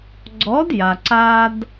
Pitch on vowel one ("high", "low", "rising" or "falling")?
rising